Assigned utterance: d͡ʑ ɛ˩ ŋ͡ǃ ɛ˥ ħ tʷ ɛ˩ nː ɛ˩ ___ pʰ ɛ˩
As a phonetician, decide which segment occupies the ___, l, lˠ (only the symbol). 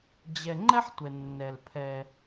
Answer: l